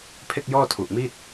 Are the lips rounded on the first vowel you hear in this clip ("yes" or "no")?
no